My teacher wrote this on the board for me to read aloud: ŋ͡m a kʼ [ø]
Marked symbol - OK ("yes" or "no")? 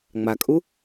no